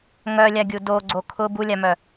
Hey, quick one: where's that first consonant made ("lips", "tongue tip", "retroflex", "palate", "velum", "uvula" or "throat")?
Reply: velum